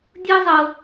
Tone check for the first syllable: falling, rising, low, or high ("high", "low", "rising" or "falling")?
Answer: high